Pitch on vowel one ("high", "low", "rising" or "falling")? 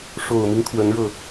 low